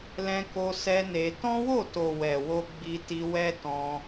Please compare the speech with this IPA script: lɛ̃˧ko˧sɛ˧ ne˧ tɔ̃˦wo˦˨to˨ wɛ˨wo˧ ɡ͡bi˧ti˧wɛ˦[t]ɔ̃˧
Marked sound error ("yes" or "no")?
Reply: no